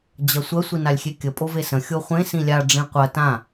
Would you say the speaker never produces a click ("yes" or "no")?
yes